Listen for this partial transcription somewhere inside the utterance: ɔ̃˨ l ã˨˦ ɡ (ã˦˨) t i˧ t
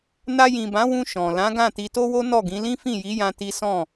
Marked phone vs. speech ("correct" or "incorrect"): correct